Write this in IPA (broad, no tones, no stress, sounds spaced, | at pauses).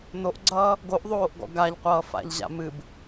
n o ʔ ɡ͡ǀ ʌː | ɡ o ʔ ðˤ oː ʔ ɡ ɔ̰ ɡ a ʎ qʷ ʌː f a̰ ʎ ʑ a̰ m ɨ b